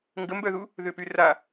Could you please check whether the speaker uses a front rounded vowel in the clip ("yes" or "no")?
yes